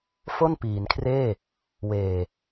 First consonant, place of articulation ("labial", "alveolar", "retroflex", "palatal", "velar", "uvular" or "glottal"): labial